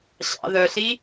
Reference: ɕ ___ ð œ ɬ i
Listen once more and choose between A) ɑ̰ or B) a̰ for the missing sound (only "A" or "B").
A